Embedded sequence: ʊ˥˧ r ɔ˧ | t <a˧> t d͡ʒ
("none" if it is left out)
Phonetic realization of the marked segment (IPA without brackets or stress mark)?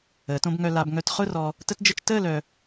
ə˧